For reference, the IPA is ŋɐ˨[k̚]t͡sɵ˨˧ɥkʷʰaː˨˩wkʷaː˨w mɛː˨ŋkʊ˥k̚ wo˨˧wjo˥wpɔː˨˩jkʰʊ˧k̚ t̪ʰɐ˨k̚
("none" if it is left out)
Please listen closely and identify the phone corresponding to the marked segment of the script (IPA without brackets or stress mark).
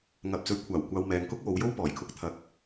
p̚